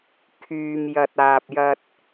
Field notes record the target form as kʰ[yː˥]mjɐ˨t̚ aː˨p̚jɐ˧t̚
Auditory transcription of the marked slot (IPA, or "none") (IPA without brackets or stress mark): yː˨